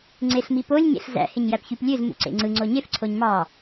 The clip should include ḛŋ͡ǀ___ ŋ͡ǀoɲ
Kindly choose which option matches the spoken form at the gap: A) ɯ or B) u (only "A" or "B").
A